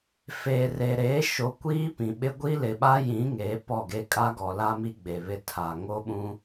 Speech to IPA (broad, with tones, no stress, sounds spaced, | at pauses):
f eː˨ r e˨ ɾ eː˨˦ ʃ o˨ kʷ iː˦ p ĩ˨ ɓ ɪ˦ ɡʷ i˦ l ɪ˨ ɓ a˦ j ĩ˨˦ ŋ eː˨˦ p ɔ˦˨ ɡ e˦ kʼ a˦ ɡ ɔ˨ l a˦ m i˦ ɡ͡b e˨ β ɪ˦ tʰ a˨ ŋ o˦ ɓ ũ˦